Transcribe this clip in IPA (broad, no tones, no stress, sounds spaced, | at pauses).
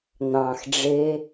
n̪ ɑ̃ x ɖ͡ʐ e